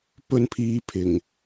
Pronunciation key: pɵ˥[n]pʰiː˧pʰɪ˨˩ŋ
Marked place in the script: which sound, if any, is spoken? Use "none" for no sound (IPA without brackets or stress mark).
n